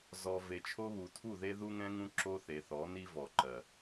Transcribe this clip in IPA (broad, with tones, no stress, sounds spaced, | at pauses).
z ɔ˨ v e˨ t͡ʃʰ o˦ β u˨ tʰ u˦˨ ð e˦ ð u˦ ŋ ɛ̃˦ ŋ ũ˦ ǁ o˦ θ e˨ θ ɔ˨˦ n i˦ v ɔ˨ ǃ ɜ˨